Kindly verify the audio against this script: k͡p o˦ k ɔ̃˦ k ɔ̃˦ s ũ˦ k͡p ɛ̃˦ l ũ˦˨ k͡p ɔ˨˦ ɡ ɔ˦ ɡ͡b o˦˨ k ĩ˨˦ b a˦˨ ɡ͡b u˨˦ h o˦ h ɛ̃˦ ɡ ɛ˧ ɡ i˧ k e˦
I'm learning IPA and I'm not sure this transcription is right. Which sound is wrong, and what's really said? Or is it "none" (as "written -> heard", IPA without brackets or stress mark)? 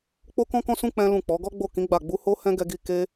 b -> ɡ͡b